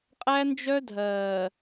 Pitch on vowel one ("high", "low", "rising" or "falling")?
high